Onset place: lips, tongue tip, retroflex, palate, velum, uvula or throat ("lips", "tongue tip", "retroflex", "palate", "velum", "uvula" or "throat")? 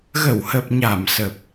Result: velum